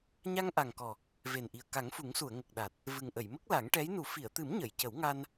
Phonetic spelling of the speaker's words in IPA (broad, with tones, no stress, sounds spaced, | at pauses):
ɲ a˧ ŋ ʔ a˨˩ ŋ k ɔ˨˩ | v e˨˩ n ʔ i˨˩ ə̯ k a˨˩˦ ŋ f u˨˩˦ ŋ s u˨˩˨ ə̯ ŋ ə˨˩ k̚ ɗ a˨˩ t̚ | v ɨ˨˩ ŋ ʔ ə˨˩˨ j m ə˦˥ k̚ l a˨˩˦ ŋ ʈ ɛ˧˥ j n u˨˩˦ f i˨˩˨ ə̯ t̪ ɨ˨˩˦ m ɲ ə˨˩˨ j c ə˨˩˦ w ŋ a˧ n